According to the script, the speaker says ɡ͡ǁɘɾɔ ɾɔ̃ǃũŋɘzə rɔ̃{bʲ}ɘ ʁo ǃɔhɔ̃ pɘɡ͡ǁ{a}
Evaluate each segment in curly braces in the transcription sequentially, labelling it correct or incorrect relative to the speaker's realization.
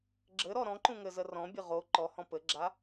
correct, correct

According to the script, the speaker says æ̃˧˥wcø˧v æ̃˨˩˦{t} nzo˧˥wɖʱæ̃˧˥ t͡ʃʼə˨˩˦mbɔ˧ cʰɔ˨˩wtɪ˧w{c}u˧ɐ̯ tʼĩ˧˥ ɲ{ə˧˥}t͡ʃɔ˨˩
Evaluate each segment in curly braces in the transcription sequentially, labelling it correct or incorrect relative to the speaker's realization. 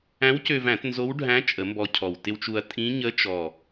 correct, incorrect: t͡ʃ, correct

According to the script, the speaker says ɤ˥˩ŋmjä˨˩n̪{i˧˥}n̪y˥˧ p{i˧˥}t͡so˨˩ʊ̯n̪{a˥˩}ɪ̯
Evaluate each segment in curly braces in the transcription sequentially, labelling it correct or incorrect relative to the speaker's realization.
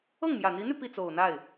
correct, incorrect: i˥˩, correct

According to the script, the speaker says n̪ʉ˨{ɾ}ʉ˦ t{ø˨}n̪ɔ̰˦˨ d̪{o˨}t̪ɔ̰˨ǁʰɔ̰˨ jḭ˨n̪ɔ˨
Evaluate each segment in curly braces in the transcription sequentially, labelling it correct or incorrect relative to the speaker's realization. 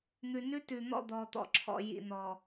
incorrect: n, incorrect: ʉ˨, incorrect: ɔ˨

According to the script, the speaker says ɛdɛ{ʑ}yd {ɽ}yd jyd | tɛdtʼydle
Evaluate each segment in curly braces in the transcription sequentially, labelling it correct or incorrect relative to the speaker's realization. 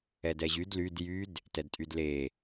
correct, incorrect: l

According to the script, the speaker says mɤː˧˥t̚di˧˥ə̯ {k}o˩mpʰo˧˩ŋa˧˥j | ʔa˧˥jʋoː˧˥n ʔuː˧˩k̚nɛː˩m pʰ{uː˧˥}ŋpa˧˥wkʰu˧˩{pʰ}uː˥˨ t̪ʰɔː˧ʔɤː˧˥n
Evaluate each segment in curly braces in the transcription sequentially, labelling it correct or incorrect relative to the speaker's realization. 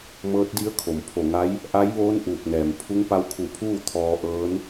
incorrect: kʰ, incorrect: u˧˥, correct

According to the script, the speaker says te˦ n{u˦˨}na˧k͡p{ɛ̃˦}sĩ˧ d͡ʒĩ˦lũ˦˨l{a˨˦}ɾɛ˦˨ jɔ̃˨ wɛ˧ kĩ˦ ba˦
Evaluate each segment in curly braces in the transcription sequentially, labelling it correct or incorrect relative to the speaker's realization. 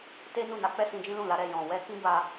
correct, incorrect: ɛ˦, correct

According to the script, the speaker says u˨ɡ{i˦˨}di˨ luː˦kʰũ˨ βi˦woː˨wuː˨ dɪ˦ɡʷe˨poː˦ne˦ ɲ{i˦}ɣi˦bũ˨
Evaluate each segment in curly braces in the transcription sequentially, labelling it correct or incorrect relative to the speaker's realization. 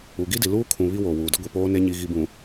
incorrect: i˦, correct

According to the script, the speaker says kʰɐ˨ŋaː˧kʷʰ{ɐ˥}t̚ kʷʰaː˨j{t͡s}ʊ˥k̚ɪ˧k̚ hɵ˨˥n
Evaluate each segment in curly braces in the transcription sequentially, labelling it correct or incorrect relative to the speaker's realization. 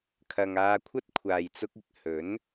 correct, correct

